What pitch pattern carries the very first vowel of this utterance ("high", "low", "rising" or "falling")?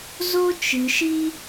high